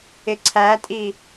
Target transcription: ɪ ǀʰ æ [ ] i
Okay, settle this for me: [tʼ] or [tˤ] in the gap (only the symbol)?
tʼ